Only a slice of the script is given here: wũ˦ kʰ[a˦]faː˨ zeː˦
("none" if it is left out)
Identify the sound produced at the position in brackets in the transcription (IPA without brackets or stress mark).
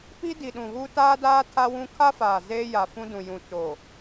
a˦